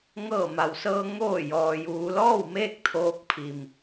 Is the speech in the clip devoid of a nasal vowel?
yes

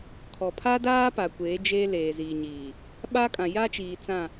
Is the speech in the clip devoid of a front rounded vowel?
yes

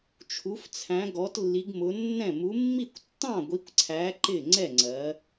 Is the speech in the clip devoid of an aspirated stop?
no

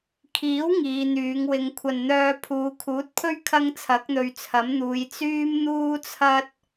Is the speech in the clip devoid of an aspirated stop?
no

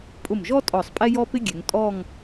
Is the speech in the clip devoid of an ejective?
no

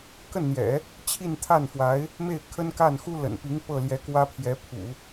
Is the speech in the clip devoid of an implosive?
yes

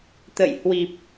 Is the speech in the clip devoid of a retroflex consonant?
yes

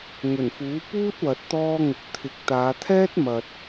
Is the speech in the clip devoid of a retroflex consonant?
yes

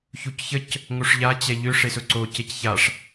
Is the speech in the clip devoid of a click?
no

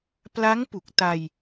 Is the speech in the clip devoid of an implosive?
yes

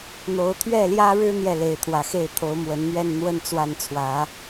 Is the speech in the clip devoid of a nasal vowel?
yes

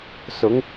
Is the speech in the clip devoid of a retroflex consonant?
yes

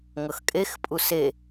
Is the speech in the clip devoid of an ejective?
no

